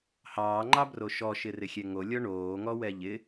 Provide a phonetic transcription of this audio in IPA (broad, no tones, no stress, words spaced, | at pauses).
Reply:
hɑːŋ͡ǃɑbro ʃɔʃɪrɪxʲɛ ŋolʲɔ ɳoːŋɔwɛ ʎɪ